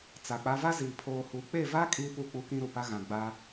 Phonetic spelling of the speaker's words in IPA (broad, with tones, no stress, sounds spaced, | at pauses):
t͡s a˨ k͡p a˦ v a˦ z iː˨ pʰ oː˨ h u˨ k͡p e˦˨ v a˦ kʼ iː˦ p u˦˨ k͡p u˦ k ĩ˦ ɾ u˨ p a˦ ɣ ã˨ ɡ͡b a˦